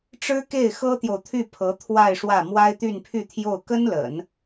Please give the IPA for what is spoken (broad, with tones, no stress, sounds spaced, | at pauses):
ʈ͡ʂ ɻ̩˥ k e˥˩ ɪ̯ x ɤ˥ t̪ j o˨ ʊ̯ t̪ʰ y˥˩ pʰ ɤ˧˥ t̪ʰ w a˥˧ ɪ̯ ʂ w ä˥˩ m w a˥ ɪ̯ t̪ y˥˧ n pʰ y˥˧ t̪ʰ j o˥˩ ʊ̯ k ə˥ n l ə̰˨˩˦ n